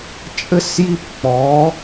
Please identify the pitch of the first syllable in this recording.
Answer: high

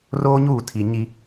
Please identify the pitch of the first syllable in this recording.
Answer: high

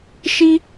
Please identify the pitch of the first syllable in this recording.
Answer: high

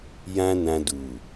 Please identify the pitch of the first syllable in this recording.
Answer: high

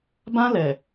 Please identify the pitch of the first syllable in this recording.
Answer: high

